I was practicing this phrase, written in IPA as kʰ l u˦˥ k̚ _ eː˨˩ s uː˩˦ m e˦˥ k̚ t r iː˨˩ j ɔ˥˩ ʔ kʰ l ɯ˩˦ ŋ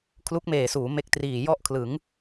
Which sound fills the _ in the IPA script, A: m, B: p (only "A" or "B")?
A